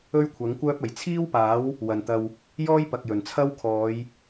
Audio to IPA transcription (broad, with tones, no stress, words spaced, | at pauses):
ɵ˥ɥkʷʰɐ˨˥ŋkʷœː˥p̚ ɐ˨˩jt͡sʰiː˥wpaː˨˥w | wɐ˨˩nt̪ɐ˨w | jɔː˥jpɐ˨k̚jɵ˨˩nt͡sʰɐ˥w kʰɔː˨˧j